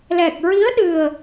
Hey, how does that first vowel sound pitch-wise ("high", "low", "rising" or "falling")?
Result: low